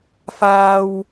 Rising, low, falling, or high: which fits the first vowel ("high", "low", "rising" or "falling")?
high